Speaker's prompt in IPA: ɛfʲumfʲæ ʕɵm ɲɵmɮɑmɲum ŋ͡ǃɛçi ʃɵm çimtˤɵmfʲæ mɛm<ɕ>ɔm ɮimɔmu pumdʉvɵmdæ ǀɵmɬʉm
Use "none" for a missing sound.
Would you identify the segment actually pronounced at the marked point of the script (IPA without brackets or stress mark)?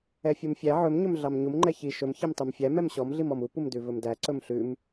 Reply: ɕ